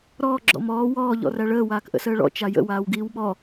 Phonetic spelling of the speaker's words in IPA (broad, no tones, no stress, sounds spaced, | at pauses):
ɾ ɔː ɡ͡ǁ ɔ̰ m ɔː w ɔː ʎ ɔ̰ r æ ɭ əː w aː k ʔ ə̰ s əː ɭ ɔ̰ t͡ʃ a j ə̰ w aː w ɡ iː w ɓ ɔ